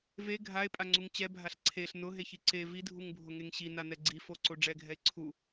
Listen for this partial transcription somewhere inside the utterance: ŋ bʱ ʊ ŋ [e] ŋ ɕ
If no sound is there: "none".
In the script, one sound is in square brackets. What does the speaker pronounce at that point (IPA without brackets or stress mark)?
e